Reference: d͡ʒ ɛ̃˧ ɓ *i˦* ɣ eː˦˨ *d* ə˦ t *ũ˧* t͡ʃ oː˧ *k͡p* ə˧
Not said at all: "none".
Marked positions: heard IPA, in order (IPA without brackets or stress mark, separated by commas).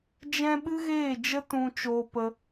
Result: ɨ˦, d͡ʒ, ũ˧, p